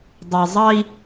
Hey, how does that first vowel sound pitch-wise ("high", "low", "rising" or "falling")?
low